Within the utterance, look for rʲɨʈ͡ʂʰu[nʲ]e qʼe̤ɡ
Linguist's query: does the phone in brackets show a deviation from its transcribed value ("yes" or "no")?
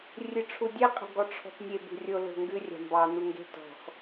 yes